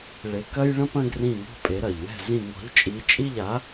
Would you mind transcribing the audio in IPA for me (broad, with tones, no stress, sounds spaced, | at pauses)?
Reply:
ɭ e˩˥ k ɐ˥ j ɭ ɐ̃˥ p ɐ̃˥ ɡ r ĩ˥˩ ŋ ɔ̤˥ pʼ e˩˥ ɾ ɐ˩ ʎ w ɛ̤˥˩ z ĩ˥˩ ŋ ɔ̤˩˥ ʎ t͡ʃʼ i˩˥ t͡ʃʼ i˥˩ ʎ a˩˥